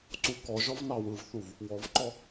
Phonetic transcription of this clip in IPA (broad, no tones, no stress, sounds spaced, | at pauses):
ǀ u k ɔ ʒ ɔ v n ɑ w ɯ v θ u v | w ɔ v ǃ ɔ